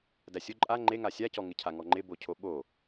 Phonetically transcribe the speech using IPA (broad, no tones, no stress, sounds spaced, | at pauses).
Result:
d æ sʲ ʊ ǃʼ a ŋ͡ǃ e ŋ a sʲ a c ɔ ŋ ɪ cʰ a ŋ ɔ ŋ͡ǃ ɪ b o cʰ o ɓ o